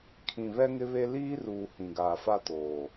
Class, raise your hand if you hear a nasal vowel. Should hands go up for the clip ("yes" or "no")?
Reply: yes